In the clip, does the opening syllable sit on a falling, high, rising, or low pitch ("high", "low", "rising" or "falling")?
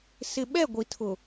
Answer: low